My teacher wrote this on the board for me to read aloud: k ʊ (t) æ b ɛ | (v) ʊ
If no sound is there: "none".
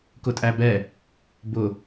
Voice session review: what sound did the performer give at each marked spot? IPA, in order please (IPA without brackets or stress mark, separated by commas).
tʼ, b